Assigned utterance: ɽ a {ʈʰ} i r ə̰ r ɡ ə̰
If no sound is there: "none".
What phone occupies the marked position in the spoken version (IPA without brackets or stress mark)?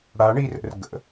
ɳ